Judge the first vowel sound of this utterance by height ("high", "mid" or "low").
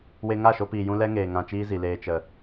mid